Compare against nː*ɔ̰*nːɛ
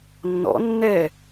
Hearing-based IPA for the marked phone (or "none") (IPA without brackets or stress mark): ɔ̰